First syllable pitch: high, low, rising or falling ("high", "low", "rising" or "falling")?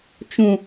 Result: low